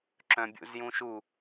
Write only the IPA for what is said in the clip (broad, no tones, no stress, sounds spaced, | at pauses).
ǁ œ̃ bʲ ṵ z j ũ ʃ u